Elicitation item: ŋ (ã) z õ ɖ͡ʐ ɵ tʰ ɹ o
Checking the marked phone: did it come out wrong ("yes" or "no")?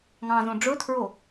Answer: yes